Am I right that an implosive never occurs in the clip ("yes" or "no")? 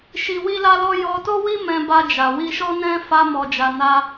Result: yes